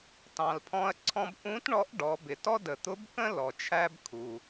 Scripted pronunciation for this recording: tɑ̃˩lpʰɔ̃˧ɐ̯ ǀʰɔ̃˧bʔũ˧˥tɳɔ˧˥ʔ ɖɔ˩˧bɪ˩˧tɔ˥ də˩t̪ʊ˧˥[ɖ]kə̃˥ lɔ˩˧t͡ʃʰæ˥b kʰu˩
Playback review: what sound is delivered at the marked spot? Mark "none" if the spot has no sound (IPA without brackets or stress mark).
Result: b